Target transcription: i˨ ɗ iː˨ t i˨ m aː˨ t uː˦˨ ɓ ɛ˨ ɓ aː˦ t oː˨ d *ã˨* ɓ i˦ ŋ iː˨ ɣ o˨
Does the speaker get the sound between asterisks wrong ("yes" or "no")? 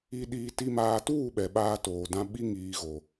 yes